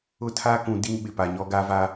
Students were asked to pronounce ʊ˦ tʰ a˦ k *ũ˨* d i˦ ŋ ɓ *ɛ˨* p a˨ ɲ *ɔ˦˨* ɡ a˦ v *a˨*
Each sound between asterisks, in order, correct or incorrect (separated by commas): correct, incorrect, incorrect, incorrect